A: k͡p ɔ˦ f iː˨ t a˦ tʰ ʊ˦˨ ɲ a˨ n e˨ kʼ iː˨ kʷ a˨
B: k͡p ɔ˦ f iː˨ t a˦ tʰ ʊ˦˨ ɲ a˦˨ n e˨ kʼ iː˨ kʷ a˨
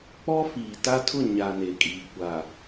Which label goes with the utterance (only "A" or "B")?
A